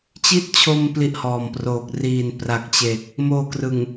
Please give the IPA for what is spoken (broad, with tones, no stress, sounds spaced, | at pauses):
t͡ɕ i˥˩ t̚ t͡ɕʰ o˧ m p l i˥˩ ʔ h ɔː˨˩ m p r oː˨˩ k̚ r iː˨˩ n p r a˨˩ k̚ t͡ɕ e˨˩ k̚ | m oː˧ k r ɯ˨˩ ŋ